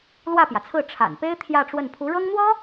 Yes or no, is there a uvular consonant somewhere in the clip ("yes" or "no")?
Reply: no